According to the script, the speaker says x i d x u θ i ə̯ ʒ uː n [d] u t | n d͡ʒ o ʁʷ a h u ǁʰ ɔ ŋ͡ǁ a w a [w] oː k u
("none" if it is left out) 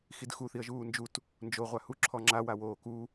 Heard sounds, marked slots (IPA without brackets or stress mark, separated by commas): d͡ʒ, w